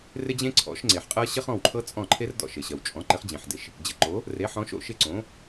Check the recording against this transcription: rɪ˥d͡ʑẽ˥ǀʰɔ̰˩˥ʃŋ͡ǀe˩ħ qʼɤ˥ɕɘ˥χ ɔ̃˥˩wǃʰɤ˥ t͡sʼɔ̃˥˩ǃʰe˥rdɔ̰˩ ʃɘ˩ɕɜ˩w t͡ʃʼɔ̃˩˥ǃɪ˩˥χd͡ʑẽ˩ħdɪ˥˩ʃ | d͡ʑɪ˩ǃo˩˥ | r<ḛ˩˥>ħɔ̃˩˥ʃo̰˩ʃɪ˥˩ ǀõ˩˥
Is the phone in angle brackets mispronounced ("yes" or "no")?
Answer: yes